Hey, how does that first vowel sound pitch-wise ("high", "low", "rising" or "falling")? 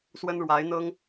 high